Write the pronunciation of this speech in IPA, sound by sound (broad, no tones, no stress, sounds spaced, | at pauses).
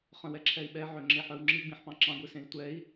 χ œ̃ w ɛ ǁʰ ɛ i̯ ɓ ɛ ʕ ø ŋ͡ǁ e ħ œ w ŋ͡ǁ i ɡ͡b ĩ ħ p ɑ̃ ǁ ɑ̃ ɡʷ i s ẽ i̯ tʷ ɛ i̯